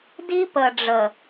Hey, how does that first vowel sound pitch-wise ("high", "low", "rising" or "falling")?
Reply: high